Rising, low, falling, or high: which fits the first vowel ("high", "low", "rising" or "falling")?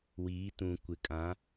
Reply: rising